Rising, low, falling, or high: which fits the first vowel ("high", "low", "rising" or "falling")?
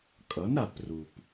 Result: rising